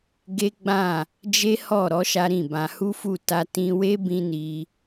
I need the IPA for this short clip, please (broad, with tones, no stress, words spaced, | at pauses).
ɡe˦ɡ͡bã˦˨ | d͡ʒe˦hɔ˦˨ɾɔ˨˦ ʃa˦ɾĩ˦˨bã˧ hu˦fu˦˨ ta˧tĩ˧we˦ bĩ˦ni˧